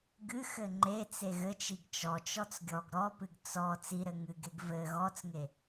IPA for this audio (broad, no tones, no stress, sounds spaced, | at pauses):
ɡ ɨ x ɘ ŋ͡ǃ e t͡s e ɣ ɘ t͡ʃ i ɡ t͡ʃ ɔ t͡ʃ ɔ t͡s ɡʲ ɔ ɡ ɾ ɔ p ɨ ɡ t͡s ɔ t͡s i ɾ ɘ ŋ ɨ ɡ e ɡ v ɘ ɣ ɔ t͡s ŋ e